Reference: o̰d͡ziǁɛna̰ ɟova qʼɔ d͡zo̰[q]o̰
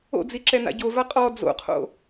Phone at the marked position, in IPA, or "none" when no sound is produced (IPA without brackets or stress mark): qʰ